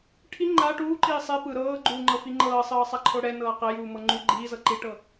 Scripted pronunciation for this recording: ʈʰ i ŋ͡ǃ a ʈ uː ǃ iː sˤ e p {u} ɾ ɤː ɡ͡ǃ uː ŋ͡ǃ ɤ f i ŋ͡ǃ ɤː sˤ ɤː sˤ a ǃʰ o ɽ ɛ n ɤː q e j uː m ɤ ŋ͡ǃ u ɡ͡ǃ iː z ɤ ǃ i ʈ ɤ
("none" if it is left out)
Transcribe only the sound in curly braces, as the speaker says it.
ɯ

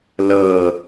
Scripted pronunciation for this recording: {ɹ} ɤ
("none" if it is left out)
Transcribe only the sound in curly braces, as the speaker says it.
l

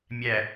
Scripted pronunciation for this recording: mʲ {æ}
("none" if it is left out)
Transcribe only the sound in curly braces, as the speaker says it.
æ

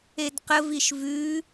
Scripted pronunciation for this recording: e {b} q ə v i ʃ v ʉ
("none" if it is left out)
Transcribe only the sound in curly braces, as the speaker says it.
d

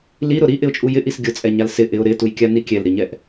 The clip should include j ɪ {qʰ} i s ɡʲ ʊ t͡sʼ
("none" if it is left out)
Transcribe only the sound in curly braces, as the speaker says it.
ʔ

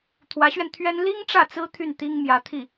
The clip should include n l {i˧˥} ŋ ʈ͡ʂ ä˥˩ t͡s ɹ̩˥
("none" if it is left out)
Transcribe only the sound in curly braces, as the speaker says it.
i˥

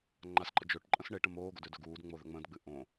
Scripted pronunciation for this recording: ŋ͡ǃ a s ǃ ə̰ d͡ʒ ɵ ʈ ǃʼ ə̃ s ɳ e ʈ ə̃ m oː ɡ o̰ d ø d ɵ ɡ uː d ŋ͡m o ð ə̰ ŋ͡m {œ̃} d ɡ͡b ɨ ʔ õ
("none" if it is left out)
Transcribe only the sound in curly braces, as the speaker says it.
ə̃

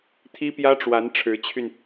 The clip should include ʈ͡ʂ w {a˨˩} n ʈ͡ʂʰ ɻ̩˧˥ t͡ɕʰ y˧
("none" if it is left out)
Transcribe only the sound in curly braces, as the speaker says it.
a˧˥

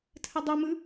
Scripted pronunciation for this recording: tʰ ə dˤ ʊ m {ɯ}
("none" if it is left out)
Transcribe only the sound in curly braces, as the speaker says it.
ɯ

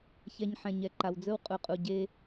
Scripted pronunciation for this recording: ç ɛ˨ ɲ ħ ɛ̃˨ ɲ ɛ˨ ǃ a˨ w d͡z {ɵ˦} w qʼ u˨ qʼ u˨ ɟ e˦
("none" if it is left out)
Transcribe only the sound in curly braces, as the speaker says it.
ɵ˦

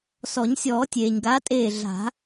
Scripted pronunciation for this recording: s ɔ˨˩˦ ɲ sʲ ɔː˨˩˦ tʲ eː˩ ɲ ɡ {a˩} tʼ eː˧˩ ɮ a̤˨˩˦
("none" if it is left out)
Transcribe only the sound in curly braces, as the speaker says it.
a˨˦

